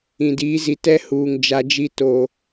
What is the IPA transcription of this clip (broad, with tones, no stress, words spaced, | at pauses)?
ĩ˨diː˨˦zi˨ tɛ˦huː˨ŋ d͡ʒa˦d͡ʒi˦ toː˨